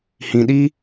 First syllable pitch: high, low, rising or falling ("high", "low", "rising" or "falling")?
low